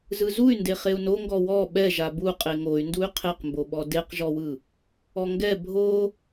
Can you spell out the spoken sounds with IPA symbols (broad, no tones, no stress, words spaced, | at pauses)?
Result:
zɯzuy̯nde χeu̯noŋɡɔ wɔ ɓɛ ʒabu qʼeŋoy̯nduy̯ qʰeqmboɓɔ deqʒɔwɯ | ɔŋɡɛ bʱo